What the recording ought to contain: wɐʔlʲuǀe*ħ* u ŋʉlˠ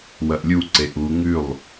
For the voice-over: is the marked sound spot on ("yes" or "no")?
no